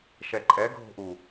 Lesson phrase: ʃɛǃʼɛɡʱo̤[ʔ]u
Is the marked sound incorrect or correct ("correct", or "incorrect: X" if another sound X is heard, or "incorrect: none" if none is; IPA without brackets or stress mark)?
correct